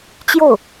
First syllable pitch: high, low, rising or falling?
falling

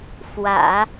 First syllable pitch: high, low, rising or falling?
low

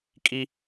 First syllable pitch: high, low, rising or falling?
high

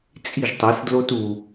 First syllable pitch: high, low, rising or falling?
falling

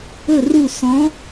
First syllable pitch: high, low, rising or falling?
falling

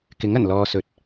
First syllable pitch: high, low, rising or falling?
rising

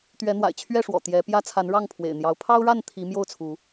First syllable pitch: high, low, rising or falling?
rising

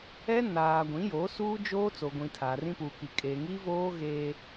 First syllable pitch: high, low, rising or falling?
high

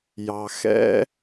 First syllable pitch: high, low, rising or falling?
low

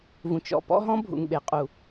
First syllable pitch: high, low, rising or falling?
low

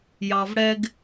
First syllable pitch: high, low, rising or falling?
low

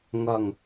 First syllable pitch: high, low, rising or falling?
low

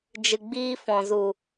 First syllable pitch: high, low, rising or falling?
low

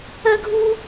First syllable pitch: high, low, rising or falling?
high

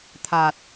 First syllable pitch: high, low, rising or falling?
low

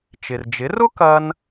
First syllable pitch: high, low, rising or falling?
low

